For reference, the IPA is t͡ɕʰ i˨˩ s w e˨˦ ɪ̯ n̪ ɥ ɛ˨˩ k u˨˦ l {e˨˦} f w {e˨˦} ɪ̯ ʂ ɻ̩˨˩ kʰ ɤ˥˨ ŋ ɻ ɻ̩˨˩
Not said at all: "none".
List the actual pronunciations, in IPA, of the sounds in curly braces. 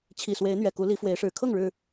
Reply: i˨˦, e˨˦

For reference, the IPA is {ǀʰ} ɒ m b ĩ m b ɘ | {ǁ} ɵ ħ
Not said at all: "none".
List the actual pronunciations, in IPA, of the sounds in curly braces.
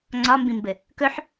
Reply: ŋ͡ǀ, k

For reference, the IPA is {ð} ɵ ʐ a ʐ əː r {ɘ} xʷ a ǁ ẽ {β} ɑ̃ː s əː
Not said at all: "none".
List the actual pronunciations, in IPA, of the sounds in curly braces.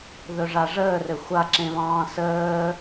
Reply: ð, ɘ, β

